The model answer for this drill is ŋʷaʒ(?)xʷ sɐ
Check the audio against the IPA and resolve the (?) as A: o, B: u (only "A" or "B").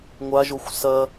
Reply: A